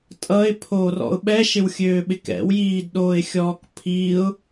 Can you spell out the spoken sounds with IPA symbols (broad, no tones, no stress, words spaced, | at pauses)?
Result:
tʼʌɪ̯pʰoːrɔ̰ʊ̯ ɓɛʃɪwxʲøːɓɪk ɛ̰wjiːdɗoːɪ̯xʲɔːk pʰiʊ̯